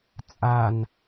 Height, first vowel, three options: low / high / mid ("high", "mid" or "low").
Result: low